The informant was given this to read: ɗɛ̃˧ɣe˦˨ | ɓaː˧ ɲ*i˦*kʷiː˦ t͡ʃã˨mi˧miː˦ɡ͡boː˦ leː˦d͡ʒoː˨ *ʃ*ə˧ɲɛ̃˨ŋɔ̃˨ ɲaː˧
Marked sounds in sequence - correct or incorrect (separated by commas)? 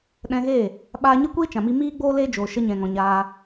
incorrect, correct